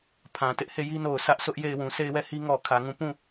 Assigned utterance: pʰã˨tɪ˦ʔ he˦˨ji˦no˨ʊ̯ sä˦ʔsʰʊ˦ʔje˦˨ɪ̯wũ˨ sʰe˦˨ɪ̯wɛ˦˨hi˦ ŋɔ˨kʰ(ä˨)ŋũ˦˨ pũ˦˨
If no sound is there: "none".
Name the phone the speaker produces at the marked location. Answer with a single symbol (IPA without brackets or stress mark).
ä˨